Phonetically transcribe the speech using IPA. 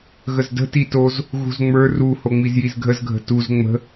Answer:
ɣ ə z d ə̤ t i t o z | ɣ ṳ z ŋ͡m ə˞ r u h o ŋ͡m i z j i z ɡʱ ə z ɡʱ ə̤ t u z ŋ͡m ə̤

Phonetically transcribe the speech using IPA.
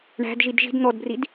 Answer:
ɳ æ̤ d ʒ i d ʒ i̤ d n̪ ɔ d b r i d

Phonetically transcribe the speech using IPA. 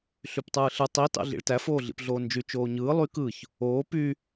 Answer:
ɬ y p tˤ ɯː ɬ ɯ tˤ i t ɑ̰ ɮ ḭ ɭ t æ f oː ɮ ḭ p ɮ oː n d͡ʒ y t͡ʃ oː ɲ ɯː lˠ y k ɯ ç | oː p y

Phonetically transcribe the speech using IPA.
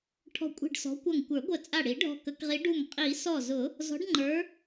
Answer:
ʈʰ ɔ̤˧˩ kʷʼ i̤˧˩ ɖ s ɔ̤˨˦ kʷ ʌ˧˩ ŋ kʷ ə˞˨˩˦ ɡʷ ə˧˩ t͡sʼ a˧˩ ɽ i˨˩˦ ɖʱ ɔ̤˧˩ k ə˨˩˦ k ʁ i˨˦ ɖ u˧˩ ŋ qʼ i˨˩˦ s ɔ˧˩ z ʊ˨˩˦ | z ɔ̤˨˦ ɖ ŋ͡ǃ ə˞˨˦

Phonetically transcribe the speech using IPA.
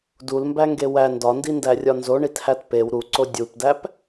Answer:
d u l m b æ ŋ ɡ e w æ n d ɒ n d i n d æ rʲ ɒ n z o ɳ i t h æ t p e w ɾ u ǀ o dʲ u p d æ p

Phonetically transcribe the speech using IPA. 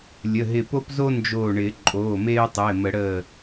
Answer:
lʲ ə˩˧˩ ɦ ɪ˧˩ p o˦ p z o˦ n d͡ʒ oː˧˩ ɳ ɪː˨˩˦ ǃʼ oː˩˧˩ m eː˦ ʊ̯ tˤ o˩˧˩ ɪ̯ m ə˨˩˦ ɽ əː˧˩

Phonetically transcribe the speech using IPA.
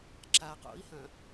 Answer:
ǁ a q o̰ i̯ h ɐ̃

